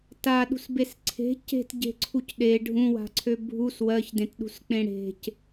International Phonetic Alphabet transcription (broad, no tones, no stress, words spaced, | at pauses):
taɗṳsbes ǀʰe̤ ce̤tɟe̤ǀʰuc ɗe ɖʱũwa̤ǀʰø bʱus wɜçdẽtɗṳsk͡pẽ ɽe̤c